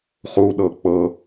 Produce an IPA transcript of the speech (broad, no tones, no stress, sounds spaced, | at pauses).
χ u ɗ ɤ k͡p ɤ